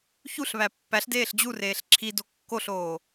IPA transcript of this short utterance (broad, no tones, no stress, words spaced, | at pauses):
çuɬβæ pːæɬdeːɬ d͡ʑureːɬ ǁʰido kːoɬoː